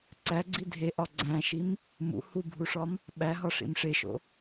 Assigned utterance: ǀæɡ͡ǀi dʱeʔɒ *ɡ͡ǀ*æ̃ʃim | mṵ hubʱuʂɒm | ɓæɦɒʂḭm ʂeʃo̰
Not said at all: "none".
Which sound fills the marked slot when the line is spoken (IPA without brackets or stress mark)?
ɡ͡ǀ